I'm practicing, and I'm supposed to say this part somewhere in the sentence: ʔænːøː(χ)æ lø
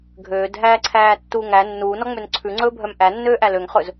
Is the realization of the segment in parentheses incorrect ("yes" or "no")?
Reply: yes